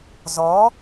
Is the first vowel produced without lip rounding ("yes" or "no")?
no